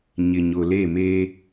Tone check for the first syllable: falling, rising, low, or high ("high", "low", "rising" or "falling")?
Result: low